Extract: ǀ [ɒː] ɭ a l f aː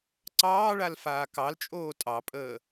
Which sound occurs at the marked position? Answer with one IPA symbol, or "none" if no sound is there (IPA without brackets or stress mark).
ɑː